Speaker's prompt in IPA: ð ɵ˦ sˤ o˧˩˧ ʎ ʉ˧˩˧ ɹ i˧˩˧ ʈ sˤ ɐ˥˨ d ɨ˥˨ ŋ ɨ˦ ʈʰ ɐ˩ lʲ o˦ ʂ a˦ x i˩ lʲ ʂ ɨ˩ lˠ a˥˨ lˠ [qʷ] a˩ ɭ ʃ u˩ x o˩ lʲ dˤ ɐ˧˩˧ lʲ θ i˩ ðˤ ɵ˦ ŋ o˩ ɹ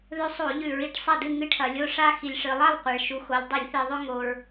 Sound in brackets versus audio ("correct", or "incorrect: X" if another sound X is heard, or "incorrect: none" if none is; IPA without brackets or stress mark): correct